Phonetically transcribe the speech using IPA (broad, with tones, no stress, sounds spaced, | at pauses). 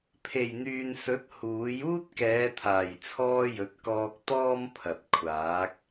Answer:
pʰ e˨˩ j n̪ yː˨ n s ɵ˨˥ t̚ h uː˨˥ j uː˥ t̚ k ɛː˨˧ t̪ʰ aː˨˩ j t͡sʰ ɔː˥ j ɵ˨˥ t̚ k ɔː˧ k̚ t̪ ɔː˥ m pʰ ɐ˨ t̚ kʷʰ aː˨˥ k̚